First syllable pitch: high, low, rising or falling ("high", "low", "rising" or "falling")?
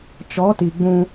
rising